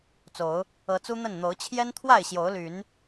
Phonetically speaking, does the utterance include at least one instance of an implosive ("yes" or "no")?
no